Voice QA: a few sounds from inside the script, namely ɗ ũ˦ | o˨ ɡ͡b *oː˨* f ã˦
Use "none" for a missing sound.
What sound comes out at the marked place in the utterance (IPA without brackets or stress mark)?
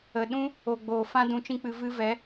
oː˨